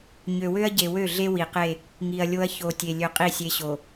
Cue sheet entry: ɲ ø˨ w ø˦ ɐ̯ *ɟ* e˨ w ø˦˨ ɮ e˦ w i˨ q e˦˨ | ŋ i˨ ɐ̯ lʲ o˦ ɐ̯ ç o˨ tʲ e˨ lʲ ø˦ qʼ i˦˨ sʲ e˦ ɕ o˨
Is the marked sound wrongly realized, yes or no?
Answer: no